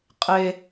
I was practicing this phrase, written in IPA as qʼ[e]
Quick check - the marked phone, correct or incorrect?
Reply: correct